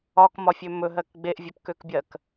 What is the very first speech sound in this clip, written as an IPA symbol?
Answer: ɒ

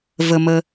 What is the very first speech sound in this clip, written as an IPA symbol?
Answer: v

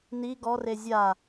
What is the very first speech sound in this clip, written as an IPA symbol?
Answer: n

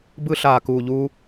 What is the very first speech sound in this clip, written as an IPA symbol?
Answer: b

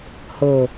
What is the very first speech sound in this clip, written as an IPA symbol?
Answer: h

